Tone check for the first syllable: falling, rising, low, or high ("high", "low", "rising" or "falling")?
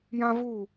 high